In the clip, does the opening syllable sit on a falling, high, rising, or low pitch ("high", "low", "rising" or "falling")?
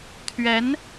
rising